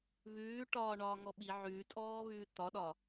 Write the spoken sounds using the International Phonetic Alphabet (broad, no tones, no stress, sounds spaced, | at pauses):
β ʉː ʈ ɒː ɳ ɒː ŋ ɔ ɓ i ʕ ʉː tʼ ɔː β ʉː t̪ ɒ ɗ ɒ